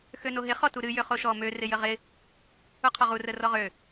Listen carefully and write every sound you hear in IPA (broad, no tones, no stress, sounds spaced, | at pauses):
x ø n o ɦ ɪ χ ɔ t u ɾ ɨ j ø χ o ʃ ɔ m ø r ɪ j ə ʁ ɪ | u qʰ ɔ ʁ u r ə r ɔ ʁ ø